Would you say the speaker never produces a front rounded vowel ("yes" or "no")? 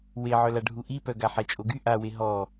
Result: no